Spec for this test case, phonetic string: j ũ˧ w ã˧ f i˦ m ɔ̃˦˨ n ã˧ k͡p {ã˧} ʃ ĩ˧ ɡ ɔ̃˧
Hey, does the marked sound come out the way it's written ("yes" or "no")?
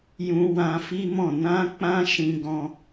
yes